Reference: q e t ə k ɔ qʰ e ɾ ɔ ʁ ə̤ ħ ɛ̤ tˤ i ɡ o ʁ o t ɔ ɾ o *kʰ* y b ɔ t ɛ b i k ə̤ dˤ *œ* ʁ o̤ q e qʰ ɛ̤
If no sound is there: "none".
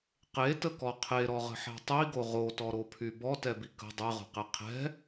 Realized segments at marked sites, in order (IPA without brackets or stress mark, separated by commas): pʰ, ɛ